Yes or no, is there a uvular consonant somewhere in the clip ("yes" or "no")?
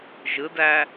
no